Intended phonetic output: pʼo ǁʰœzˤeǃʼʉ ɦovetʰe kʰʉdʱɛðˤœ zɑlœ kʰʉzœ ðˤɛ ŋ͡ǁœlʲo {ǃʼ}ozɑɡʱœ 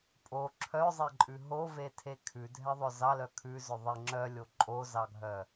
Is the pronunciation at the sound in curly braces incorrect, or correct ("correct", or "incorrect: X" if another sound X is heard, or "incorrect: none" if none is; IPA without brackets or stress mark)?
correct